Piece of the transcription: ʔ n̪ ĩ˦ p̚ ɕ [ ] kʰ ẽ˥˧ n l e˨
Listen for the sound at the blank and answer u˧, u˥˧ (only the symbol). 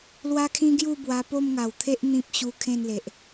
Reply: u˧